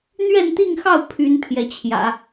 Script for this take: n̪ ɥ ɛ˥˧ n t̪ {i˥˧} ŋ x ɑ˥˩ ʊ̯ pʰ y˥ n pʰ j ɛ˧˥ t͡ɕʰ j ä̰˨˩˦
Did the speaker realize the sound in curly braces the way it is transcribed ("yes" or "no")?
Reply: yes